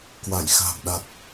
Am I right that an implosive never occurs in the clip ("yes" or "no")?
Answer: no